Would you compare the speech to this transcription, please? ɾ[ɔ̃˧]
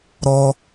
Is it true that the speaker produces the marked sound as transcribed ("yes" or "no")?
no